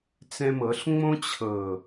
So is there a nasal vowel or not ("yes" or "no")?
yes